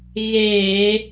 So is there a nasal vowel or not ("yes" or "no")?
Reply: no